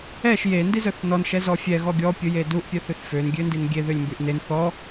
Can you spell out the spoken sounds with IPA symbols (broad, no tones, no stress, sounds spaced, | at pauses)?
ɛ ʃ j e n d i z œ θ n ɔ n ʃ ɛ z ɔ fʲ ɛ ɣ ɔ ɡʲ ɔ pʲ u j e d u ʔ pʲ œ θ ø θ f ø n ɡʲ ø n d i n ɡʲ e ð ø lʲ m b y ʔ n e n θ ɔ